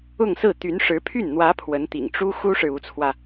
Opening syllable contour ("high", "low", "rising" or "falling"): falling